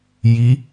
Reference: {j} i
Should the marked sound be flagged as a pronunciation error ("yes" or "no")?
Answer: no